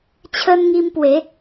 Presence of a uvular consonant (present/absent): absent